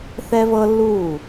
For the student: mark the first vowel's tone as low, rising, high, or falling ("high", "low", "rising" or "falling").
high